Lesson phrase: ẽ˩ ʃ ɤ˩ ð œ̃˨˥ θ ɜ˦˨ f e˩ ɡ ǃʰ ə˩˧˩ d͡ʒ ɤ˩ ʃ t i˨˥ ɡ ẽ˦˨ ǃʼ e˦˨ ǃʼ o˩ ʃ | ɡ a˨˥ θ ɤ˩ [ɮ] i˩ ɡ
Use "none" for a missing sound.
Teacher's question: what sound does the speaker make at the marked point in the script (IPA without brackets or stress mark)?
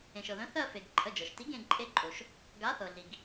ɮ